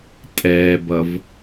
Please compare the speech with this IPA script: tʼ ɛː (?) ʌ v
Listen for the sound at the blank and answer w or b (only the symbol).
b